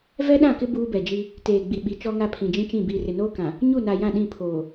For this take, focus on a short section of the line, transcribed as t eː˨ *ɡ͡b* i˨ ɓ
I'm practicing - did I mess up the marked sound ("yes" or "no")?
no